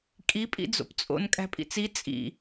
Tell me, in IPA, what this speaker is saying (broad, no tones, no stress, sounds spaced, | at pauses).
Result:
kʼ i pʼ ḭ d͡z o̰ p t͡sʼ o̰ n kʼ æ̤ pʼ ḭ t͡s i t͡sʼ ḭ